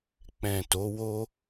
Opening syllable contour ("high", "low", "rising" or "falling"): low